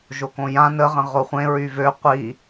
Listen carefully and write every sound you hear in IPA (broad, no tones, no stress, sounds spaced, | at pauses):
ʒ o k õ j ã n ə ʁ ə̃ ʁ o χʷ ẽ ɹ y v ø qʷ i